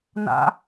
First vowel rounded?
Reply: no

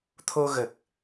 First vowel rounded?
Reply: yes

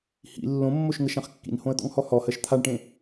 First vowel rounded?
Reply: no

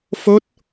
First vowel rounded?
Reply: yes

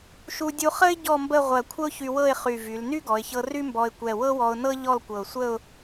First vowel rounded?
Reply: yes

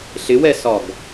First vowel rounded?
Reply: no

